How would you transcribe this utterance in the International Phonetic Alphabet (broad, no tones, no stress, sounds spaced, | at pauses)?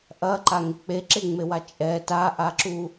ʔ ɐ ǃ a ŋ ɪ k͡p e ǁ e ŋ͡m e w a t͡ʃʼ ɛ t a ʔ a ǁ u